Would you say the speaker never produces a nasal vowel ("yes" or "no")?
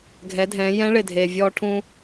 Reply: no